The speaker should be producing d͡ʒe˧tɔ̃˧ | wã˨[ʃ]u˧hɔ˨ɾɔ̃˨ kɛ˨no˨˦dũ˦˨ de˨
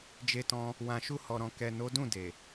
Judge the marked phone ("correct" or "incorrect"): correct